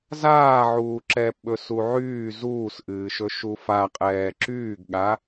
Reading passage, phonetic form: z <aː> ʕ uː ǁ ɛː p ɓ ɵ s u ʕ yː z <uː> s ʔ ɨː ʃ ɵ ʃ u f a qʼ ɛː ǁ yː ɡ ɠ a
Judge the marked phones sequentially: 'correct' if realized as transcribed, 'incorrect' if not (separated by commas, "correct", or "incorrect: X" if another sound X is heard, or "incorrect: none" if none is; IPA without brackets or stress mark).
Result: correct, correct